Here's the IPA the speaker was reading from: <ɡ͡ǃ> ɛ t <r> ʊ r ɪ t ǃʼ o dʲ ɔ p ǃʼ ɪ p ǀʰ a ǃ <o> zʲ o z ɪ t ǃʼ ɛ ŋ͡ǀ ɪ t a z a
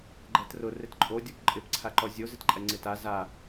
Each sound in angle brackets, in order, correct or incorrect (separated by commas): correct, correct, incorrect